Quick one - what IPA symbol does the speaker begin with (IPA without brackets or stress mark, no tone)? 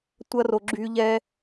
tʷ